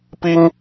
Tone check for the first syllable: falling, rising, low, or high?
high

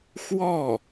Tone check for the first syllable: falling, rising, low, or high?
falling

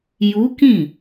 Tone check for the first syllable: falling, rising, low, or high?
rising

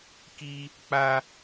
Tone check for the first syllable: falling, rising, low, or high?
high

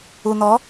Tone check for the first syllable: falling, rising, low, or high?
low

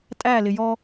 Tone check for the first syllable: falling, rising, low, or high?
falling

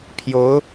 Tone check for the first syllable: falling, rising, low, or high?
rising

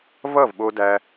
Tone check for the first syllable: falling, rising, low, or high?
falling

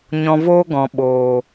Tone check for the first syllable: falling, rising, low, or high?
low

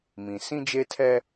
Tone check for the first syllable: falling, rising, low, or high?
low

